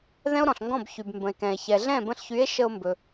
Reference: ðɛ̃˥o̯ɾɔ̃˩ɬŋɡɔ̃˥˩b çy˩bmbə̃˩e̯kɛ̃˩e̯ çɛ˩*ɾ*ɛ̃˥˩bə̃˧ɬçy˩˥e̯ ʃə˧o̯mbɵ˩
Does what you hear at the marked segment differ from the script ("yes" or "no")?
yes